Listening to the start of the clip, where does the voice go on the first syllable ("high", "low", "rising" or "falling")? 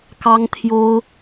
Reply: high